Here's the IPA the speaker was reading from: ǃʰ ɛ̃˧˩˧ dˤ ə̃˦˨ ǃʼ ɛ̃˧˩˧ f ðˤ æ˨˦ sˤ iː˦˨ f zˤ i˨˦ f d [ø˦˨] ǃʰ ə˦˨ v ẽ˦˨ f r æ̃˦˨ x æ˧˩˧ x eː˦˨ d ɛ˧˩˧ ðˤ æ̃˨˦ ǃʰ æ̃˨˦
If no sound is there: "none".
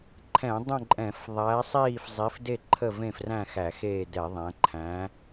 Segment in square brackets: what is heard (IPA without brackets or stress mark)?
e˦˨